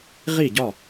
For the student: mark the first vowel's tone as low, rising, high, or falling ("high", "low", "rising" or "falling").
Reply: falling